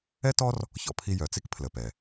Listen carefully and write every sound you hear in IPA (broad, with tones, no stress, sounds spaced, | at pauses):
ɛ˥ t ɔ˥ r | ç ɔ̰˧ pʰ i˧ j œ˩ t͡s i˥ k pʰ l ə˩ p ɛ˩